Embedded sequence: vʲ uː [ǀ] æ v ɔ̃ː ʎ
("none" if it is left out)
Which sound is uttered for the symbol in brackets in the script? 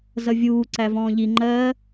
ǀ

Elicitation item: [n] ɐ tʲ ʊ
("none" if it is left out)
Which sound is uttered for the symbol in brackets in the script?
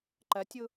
ǃ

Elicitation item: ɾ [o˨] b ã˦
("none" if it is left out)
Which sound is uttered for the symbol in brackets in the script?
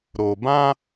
o˨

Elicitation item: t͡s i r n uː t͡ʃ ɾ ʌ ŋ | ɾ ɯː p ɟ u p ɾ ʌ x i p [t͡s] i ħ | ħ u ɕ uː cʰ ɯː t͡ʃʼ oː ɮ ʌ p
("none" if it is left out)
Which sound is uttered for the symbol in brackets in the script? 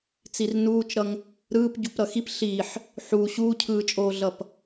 ɬ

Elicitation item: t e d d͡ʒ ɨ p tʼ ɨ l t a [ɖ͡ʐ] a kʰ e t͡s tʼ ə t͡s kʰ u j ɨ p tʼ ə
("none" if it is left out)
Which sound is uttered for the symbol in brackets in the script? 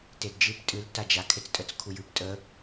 d͡ʒ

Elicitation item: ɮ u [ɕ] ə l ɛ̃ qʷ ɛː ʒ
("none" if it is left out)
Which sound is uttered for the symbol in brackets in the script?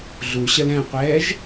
ɕ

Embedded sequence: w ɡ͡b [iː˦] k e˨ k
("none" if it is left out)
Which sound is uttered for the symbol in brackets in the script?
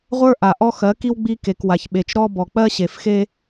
i˦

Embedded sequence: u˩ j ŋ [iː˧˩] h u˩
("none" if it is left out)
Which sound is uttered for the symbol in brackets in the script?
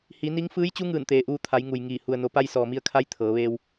iː˧˩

